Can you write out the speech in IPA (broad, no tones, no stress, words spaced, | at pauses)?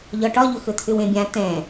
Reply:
ʎɒʈɒʎɵ xɵt̪ʰʏwẽbʲã t̪ɛ̃